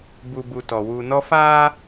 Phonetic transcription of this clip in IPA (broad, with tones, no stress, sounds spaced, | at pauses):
b u˨ b u˨ t ɔ˨ w uː˨ n ɔ˦ f aː˦